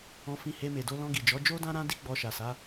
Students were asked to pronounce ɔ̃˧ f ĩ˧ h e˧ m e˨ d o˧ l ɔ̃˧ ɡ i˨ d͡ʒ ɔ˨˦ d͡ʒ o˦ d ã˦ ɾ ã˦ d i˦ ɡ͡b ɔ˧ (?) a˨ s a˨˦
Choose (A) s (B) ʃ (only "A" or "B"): B